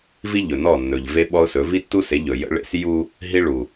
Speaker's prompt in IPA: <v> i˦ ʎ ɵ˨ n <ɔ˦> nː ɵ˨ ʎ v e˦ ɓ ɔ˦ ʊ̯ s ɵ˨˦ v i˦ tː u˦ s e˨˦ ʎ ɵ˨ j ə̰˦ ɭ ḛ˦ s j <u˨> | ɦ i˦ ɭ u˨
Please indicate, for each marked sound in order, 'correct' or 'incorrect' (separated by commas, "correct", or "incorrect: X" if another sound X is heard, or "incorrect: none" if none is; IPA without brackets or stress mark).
correct, incorrect: ɔ˦˨, incorrect: u˦